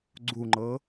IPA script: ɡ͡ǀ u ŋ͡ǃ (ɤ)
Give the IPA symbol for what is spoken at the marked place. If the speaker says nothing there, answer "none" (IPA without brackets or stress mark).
ɤ